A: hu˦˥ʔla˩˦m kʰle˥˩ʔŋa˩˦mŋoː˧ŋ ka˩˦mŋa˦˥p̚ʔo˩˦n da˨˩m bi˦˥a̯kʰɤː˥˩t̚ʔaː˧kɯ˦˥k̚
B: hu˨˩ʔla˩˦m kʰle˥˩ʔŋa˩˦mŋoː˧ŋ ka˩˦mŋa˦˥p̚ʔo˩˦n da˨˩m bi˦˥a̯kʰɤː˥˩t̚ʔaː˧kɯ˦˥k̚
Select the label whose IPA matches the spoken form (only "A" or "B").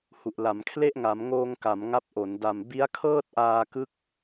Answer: B